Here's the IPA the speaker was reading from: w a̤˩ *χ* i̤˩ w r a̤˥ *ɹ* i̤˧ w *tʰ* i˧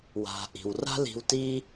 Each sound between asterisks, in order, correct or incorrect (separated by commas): incorrect, incorrect, incorrect